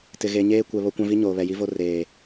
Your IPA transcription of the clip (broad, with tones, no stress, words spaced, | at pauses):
tɪ˨ɣe˨ɲeː˦ kʷɛ˨ βo˦kʷã˦vi˦ ɲoː˨βɛ˨ji˦vo˦ reː˨